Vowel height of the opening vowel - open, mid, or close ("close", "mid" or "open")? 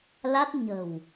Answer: open